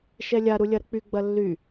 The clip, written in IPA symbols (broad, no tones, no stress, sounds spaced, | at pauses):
ʃ ɛ lʲ a ɾ u lʲ ɐ ɾ ə k͡p y ɡ͡b ɐ lː y